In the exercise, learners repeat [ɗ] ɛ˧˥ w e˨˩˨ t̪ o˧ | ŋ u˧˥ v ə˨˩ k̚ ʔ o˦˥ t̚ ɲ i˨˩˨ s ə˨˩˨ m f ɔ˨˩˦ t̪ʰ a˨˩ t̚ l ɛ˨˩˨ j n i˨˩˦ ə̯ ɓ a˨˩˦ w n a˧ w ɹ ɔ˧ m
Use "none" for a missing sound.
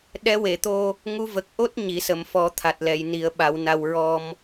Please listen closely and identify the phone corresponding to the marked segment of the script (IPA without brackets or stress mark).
ɗ